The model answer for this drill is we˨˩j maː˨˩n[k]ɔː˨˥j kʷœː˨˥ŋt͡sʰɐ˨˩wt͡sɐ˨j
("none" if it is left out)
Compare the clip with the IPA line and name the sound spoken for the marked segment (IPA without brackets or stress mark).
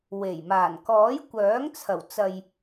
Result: k